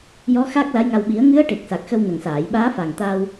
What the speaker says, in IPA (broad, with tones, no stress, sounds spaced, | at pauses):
j ɔ˧˥ x a˦˥ k̚ l a˧˥ j ŋ a˧ w ɓ i˨˩˦ ə̯ ŋ ɨ˧˥ ə̯ ʈ e˨˩ k̚ s a˨˩ k̚ x ə˧ w n ə˨˩ ŋ s aː˨˩˨ j ɓ aː˧˥ f a˨˩ ŋ t̪ a˧ w